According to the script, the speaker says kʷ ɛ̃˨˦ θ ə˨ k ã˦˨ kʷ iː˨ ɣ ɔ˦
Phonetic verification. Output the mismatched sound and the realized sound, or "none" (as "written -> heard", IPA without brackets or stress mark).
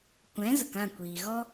θ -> z